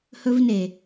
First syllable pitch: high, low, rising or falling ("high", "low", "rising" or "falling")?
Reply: high